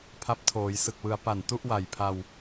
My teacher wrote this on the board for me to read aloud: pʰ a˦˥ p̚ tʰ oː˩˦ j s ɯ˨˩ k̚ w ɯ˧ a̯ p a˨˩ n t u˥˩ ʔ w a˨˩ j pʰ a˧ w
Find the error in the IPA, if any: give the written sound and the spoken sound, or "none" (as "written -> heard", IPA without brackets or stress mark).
none